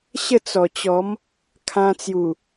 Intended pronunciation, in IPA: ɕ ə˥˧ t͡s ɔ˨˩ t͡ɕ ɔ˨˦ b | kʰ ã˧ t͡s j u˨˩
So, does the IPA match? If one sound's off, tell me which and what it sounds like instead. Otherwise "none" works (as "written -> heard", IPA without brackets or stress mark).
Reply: b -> m